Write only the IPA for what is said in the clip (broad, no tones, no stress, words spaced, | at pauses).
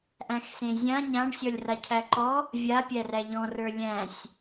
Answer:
ʔæ̃xsẽzʲã ɲãɳ sʲɔlʲracʰæǃɔ | vʲa pʲæræʎɔ̃r ə˞lʲæ̃sʲ